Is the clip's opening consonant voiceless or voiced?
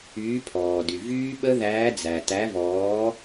voiceless